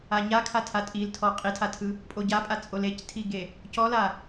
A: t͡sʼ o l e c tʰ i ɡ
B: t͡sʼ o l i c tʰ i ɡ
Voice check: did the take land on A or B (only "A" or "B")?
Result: A